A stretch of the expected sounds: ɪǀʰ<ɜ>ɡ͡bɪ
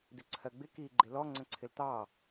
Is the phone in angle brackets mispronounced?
no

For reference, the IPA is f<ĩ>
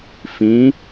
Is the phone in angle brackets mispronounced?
no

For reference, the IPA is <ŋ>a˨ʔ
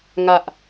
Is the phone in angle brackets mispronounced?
no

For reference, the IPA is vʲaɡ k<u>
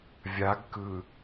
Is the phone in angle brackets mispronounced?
yes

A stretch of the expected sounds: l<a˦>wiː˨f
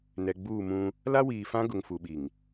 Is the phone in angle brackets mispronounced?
no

